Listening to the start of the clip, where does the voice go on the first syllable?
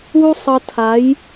high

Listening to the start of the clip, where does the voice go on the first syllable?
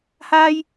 high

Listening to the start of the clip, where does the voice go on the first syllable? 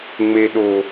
high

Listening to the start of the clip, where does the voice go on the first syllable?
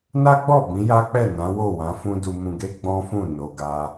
high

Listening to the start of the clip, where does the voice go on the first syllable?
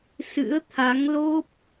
rising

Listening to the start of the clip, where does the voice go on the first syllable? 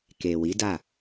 low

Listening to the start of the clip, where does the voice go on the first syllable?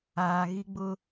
low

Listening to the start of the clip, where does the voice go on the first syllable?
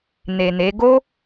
low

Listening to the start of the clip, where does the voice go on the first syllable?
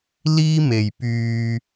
high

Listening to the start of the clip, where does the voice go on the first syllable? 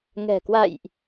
low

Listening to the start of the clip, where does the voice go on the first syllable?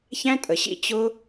high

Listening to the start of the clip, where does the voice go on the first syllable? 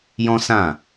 high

